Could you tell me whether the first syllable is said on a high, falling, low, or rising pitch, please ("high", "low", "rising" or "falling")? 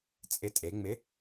rising